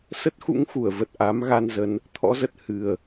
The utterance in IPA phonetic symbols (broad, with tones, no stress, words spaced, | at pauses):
sə˦˥t̚xṵ˧˥ŋxu˧˩ə̯və˨˩t̚ ʔa˨˦mɣa˧nzə˨˦n | t̪ʰɔ̰˧˥zə˨˩t̚ hɨ˨˩ə̯